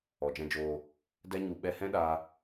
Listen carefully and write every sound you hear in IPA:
ɔ˨ d͡ʒ ɛ̃˧ d͡ʒ oː˧ | d ɛ˦ ɲ u˧ ɓ ɛ˧ h ɛ̃˦ ɗ aː˧

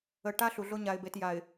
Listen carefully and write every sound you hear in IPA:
ə˨ ʈ a˦ ɬ u˨ ɮ o˦ ɲ a˨ ɪ̯ b e˨ t j a˨ ɪ̯

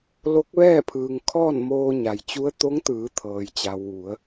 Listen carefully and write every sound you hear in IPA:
l o˧˥ k̚ ʋ ɛː˥˨ pʰ ɯː˩ ŋ kʰ ɔː˥˨ n m oː˧ ɲ a˩ j t͡ɕ u˧˥ ə̯ t̪ o˧˥ ŋ t̪ ɯː˩˧ t̪ʰ ɤː˩ j t͡ɕ a˩ w ʋ u˩˧ ə̯

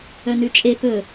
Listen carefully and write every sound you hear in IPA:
œ n ʉ t͡ʃʼ e p ɵ

